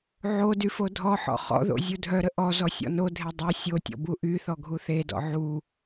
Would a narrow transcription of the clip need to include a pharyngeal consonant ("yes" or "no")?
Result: yes